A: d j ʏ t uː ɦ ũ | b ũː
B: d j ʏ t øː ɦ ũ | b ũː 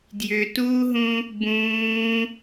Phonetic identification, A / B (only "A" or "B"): A